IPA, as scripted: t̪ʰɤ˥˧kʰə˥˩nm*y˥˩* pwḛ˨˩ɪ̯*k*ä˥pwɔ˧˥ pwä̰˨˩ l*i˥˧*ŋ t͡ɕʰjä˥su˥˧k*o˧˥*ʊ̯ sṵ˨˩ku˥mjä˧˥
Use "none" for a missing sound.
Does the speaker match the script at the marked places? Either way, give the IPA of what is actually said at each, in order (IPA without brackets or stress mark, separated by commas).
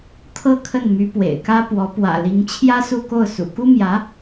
y˧˥, k, i˧˥, o˥˩